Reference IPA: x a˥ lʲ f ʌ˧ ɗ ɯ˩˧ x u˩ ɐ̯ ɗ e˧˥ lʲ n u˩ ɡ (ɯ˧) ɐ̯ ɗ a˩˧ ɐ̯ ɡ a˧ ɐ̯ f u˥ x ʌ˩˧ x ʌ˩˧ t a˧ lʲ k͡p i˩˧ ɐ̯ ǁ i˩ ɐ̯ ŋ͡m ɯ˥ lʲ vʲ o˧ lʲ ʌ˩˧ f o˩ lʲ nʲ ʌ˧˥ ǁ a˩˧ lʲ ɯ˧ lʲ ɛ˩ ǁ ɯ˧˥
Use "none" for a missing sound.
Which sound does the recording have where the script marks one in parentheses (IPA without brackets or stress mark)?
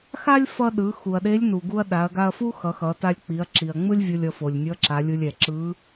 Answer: u˧